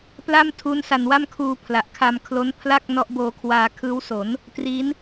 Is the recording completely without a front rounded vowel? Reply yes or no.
yes